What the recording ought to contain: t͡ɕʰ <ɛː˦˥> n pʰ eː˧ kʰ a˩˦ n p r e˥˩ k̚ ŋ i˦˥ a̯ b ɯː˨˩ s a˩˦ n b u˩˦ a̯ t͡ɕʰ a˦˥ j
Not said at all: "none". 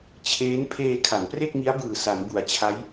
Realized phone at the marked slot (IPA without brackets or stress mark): eː˦˥